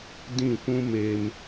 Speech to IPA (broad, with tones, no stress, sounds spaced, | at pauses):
d ĩ˦˨ kʷ ũ˦ m eː˦ m